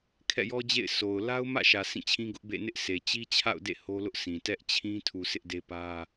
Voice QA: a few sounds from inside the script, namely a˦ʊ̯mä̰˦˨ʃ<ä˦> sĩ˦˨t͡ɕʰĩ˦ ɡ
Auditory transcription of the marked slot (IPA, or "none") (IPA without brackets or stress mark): ä˨